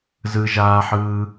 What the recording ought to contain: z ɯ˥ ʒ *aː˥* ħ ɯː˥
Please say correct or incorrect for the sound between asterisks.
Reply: correct